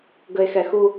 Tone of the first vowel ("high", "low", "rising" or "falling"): low